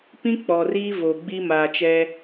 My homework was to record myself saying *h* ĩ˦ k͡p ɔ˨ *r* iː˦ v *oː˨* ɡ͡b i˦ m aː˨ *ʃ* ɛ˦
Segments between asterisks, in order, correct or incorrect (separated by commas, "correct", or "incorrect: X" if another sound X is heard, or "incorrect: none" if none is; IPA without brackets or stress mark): incorrect: p, correct, incorrect: o˨, incorrect: t͡ʃ